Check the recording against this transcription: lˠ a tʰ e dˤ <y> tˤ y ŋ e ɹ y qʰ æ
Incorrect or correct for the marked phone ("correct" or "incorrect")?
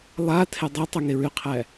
incorrect